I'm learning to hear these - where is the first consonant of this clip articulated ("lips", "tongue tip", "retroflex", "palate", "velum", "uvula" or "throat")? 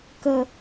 velum